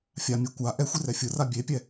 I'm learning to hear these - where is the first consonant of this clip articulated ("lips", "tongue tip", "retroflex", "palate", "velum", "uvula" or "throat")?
lips